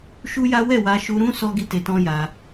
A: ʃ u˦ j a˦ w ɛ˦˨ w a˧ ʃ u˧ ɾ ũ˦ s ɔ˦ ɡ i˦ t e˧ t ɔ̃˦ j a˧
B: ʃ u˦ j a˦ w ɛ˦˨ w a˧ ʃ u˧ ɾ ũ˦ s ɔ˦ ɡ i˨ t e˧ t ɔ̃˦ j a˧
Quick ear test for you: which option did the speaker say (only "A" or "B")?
A